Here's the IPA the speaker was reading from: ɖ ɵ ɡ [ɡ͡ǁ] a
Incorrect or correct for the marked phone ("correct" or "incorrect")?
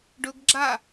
correct